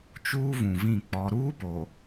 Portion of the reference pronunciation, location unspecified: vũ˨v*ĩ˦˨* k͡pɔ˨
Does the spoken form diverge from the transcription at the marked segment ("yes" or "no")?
no